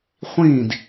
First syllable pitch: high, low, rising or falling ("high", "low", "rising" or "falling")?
falling